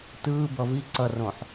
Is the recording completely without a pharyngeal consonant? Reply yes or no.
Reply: no